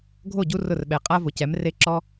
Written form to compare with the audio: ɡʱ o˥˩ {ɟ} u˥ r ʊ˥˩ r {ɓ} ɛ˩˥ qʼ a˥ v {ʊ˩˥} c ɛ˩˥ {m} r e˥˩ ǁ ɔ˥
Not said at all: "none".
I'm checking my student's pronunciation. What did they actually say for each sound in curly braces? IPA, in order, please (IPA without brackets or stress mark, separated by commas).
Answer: ɟ, ɓ, ʊ˩˥, m